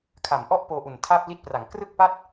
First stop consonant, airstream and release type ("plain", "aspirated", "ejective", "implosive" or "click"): aspirated